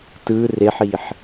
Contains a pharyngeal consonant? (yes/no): yes